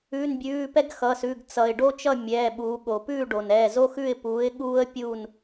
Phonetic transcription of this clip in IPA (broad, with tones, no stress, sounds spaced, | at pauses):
ʉ˩˧˩ n bʲ ʉː˩˧˩ p ɛ˥ ɡ x ʌ˩˧˩ s ʉ˩˧˩ ɡ t͡s ʌ˩ ɪ̯ ɖ o˥ t͡ʃ ʌ˥˨ mʲ ɛː˩˧˩ ɓ uː˩˧ ɠ o˩ p ʉː˥˨ ɖ o˩ n ɛː˩˧˩ z o˥ x ʉ˥˨ ɪ̯ p uː˨˥ ɪ̯ ɠ uː˥ ə̯ pʲ uː˥˨ n